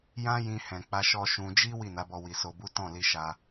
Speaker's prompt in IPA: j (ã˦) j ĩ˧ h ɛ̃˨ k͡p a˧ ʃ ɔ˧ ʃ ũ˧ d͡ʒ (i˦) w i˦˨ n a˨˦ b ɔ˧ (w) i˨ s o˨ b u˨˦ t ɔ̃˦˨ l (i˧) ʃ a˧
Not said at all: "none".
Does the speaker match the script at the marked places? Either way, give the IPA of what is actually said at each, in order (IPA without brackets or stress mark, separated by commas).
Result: ã˦, i˦, w, i˧